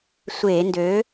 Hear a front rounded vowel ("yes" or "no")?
yes